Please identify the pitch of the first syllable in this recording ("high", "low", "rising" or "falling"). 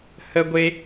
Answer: high